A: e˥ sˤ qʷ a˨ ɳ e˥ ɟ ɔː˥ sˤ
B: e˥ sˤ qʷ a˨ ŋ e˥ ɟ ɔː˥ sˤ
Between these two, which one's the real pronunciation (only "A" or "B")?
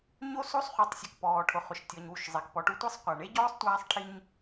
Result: A